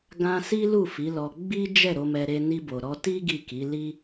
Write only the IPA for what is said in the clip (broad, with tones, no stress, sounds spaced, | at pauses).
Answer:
ɡ ã˦ s i˦ l u˦˨ f i˨˦ l ɔ˧ ɡ͡b i˦ d͡ʒ ɛ˦˨ ɾ o˧ m ɛ˧ ɾ e˧ n i˧ b o˨ ɾ ɔ˧ t i˦ ɡ i˦˨ k i˨˦ l i˧